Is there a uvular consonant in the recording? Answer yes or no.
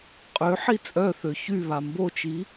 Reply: yes